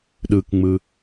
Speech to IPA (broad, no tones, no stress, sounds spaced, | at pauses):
ɗ ɯ k ŋ͡m ɯ